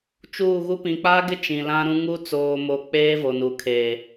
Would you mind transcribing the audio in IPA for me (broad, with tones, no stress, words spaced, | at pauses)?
t͡ʃuː˦˨ɣu˦ pĩ˨k͡paː˦ɡɪ˦ t͡ʃĩ˨lã˦ɾũ˦ ŋu˦ t͡soː˦mo˦ k͡peː˦ vo˨nu˨kʰeː˨